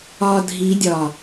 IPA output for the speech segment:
ɒ dʱ i dʲ ɒ

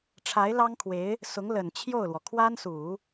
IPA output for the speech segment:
ʈ͡ʂʰ a˧˥ ɪ̯ l ɑ˥ ŋ kʰ w e˧˥ ɪ̯ | s ʊ˧˥ ŋ l ə˨˩ n t͡ɕʰ j o˥˩ ʊ̯ l w ɔ˩ kʰ w a˥ n s u˨˩˦

